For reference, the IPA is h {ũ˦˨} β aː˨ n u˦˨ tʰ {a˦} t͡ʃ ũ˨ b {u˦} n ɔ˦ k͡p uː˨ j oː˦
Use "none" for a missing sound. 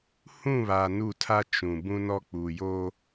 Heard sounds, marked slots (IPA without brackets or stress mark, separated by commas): ũ˦˨, a˦, ũ˦